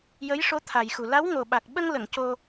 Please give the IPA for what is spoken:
j ə˧˥ j ʂ o˧˥ t̪ʰ a˨˩ j x u˨˩ l a˧˥ w ŋ o˨˩ ɓ a˨˩ k̚ ɓ ə˧ ŋ l ə˨˩˨ ŋ c o˧

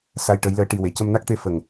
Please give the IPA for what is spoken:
s a˧ j ʈ ə˧˥ j l əː˧˥ ʈ i˨˩ w e˨˩˨ c ə˧ m n a˦˥ k̚ t̪ e˧ f ə˨˩ ŋ

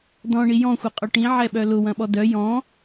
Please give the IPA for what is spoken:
d ɔ̃ ɳ i j ɔ̃ xʷ ɐ qʼ ɔ ʈ ĩ ʕ ɛ ɓ œ l ʊ w ɐ̃ ɓ ɔ d œ j ɔ̃

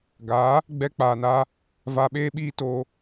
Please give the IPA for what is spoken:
ɡ aː˨˦ | ɡ͡b ɛ˧ k͡p aː˨ n aː˧ | v a˧ ɓ eː˦ ɓ iː˦ t oː˧

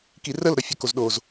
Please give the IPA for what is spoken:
k i r ə l ɾ ɒ fʲ ɒ k o z ɗ o z

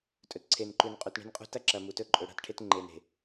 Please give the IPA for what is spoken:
tʼ ɵ˨ t ǀʰ e˨ n ǃ ʉ˨ n qʼ u˨ t ɳ e̤˦ n qʼ ṳ˦ t ɐ˦ ǁ ɐ˨ m u˨ t ɵ˦ ǃʼ ɵ˨ ɽ a̤˦ t ʈʰ e˦ t ŋ͡ǃ e˨ n e̤˨

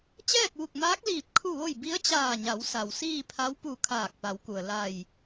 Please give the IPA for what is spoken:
t͡ɕ ɛː˥˨ k̚ ʋ u˧˩ k̚ m aː˧˥ k̚ l iː˧˩ p̚ kʰ u˥˨ ʋ o˥˨ j b i˧˥ ə̯ t͡ɕ aː˧˩ ɲ a˩˧ w s a˩ w s iː˥˨ pʰ a˧˥ w p u˧˩ kʰ aː˧˩ k̚ p a˩˧ w k u˩ ə̯ l a˧˩ j

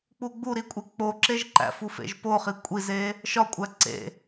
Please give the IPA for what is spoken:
k͡p u ɡ͡b u ɾ i kʷʼ e k͡p o ǁ e ʒ ǃ æ̰ f u f ḛ ʒ p o χ i kʷʼ i z e | ʃ ɒ kʷʼ æ ǀ ḛ

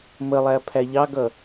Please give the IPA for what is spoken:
m ə lˠ æ pʰ æ ʎ ɑ ɡ ʌ

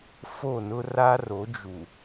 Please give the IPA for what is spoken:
f o˦˨ n ʊ˦ r a˦ r o˨˦ d͡ʒ u˨

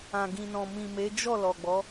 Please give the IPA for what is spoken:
ã˨ ɡ ĩ˨ n ɔ̃˨ m ĩ˨ m e˨˦ d͡ʒ ɔ˦˨ l ɔ˨ ɡ͡b ɔ˨˦

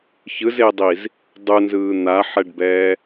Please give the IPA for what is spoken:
ç ɯ z e dˤ i z | dˤ u n z ɯː n̪ a ħ ɛ ɖ b ɛː

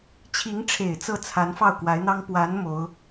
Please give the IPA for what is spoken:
t͡ɕʰ i˧˥ ŋ ʈ͡ʂʰ e˨˩ ɪ̯ t͡s ɤ˥˩ t͡sʰ a˧˥ n f ɑ˥˩ ʊ̯ k w a˧˥ ɪ̯ n̪ ɑ˥ ŋ p w a˧˥ n m o˧˥ ʊ̯

